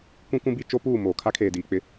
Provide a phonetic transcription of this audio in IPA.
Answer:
kʷĩ˦kũ˦bi˦ t͡ʃo˦puː˦˨ moː˨ kʰa˦kʰeː˨diː˨k͡pɪ˦

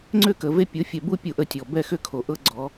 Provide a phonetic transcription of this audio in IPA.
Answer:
ŋ͡ǀʏ˦˨kə˨ve˦ pʲo˨˦fʲɛ˨ bu˦ pʲu˨ ʔə˦tʲɔ˨ bɛ˦˨xʏ˦ kʰo˨ʔɤ˦ɡ͡ǀɔ˨˦

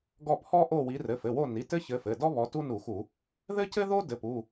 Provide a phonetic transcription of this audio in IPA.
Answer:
ɡɔ˦˨pʰɔ˥ʔo˦˨wi˨˦ rɘ˩˧˩fɘ˩˧˩wo˦˨ni˩˧˩ tɘ˥çɘ˨˦fɘ˩˧˩dɔ˥ βɔ˨˦tu˥nu˧˩˧xu˧˩˧ | ðɘ˥cɘ˥ðo˥ dɘ˩˧˩pu˩˧˩

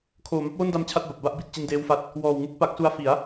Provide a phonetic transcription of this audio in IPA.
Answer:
kʰoː˨˩ma˦˥p̚wo˥˩nda˦˥m t͡ɕʰa˥˩t̚ba˨˩p̚ba˥˩ʔbi˨˩t̚ t͡ɕi˧ndeː˦˥wfa˦˥t̚ | wɔː˨˩wŋu˦˥k̚ pa˦˥k̚su˦˥a̯ fi˩˦a̯

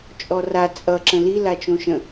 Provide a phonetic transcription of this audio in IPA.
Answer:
t͡ʃʼɔra t͡sʼʌ ǁə̃lila t͡ʃõʃə̃

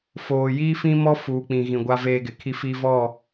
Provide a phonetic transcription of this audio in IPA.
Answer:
foː˨jiː˦fĩ˦mɔ˦ fuː˨k͡pĩ˨ɣĩ˨ ɡʷa˦veː˦ɡɪ˨ kʰi˦fi˦vɔ˦˨

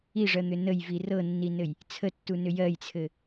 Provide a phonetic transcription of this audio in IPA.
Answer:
iʐɜn̪ʏ nəjvi rɤnːinɘj | t͡sʰətːunʏ jɜjt͡sʰɘ

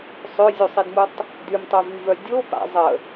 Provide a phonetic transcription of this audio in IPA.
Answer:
sˤøzʲusˤidmutˤ | dymtˤøvyvœ dʲopa̰ zˤə

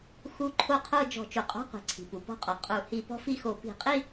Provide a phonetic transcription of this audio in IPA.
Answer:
xu˧˥˧ǃʰo˥˧qʰo˥˧ d͡ʒɔ̤˧˩˧t͡ʃu˩qʼɔ̤˧˥˧qʷi̤˩ ǀʰi̤˩pu˩pɔ̤˥˧qʼɔ˩ qʼu˧˩˧ hi˧˩˧ pɔ̤˦˥fi˥˧xo˧˩˧ pi̤˧˩˧qʼi˥˧

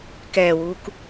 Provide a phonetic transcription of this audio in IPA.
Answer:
kɛːwuːk

